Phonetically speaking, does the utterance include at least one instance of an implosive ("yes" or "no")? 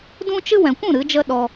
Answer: yes